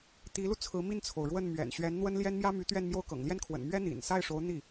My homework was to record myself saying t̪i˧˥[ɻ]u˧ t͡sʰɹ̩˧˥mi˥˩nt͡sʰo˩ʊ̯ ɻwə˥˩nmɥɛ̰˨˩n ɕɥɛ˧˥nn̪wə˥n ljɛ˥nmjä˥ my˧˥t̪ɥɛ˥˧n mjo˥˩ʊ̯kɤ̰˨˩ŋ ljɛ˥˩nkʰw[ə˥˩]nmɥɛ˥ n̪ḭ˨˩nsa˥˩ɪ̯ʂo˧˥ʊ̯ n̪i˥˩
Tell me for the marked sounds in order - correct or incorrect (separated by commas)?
incorrect, incorrect